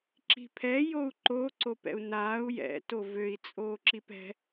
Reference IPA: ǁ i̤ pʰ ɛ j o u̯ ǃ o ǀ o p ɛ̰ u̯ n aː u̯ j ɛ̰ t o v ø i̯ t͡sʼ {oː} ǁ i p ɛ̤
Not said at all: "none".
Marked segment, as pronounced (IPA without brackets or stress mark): oː